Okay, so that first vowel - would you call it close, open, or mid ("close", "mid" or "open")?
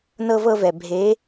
mid